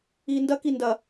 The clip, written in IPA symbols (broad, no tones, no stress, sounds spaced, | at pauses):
iː n d ɐ k i n d ɐ